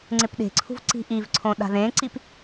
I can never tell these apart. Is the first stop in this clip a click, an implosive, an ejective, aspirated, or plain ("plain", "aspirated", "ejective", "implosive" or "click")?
click